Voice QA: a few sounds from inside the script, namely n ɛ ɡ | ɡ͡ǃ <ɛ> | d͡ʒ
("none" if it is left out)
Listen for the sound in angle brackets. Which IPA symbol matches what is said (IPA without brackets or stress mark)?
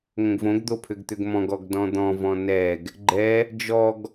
ɛ